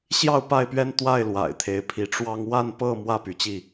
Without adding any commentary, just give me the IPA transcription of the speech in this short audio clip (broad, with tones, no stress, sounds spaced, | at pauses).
ɕ j ɑ˥˨ ʊ̯ p a˥˨ ɪ̯ p ɥ ɛ˦ n t̪ w a˥˨ ɪ̯ l w a̰˨˩ ɪ̯ t̪ʰ e˨˦ ɪ̯ pʰ i˨˦ ʈ͡ʂ w ɑ˦ ŋ w a˥˨ n p ɤ˥˨ m w ä˥˨ p y˨˦ t͡ɕ i˥˨